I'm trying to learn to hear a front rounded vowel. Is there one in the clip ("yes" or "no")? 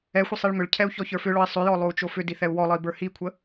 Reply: yes